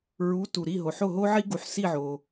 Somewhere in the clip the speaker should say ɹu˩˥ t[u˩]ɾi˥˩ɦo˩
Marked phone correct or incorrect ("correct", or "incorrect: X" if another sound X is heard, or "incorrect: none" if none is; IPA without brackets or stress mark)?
correct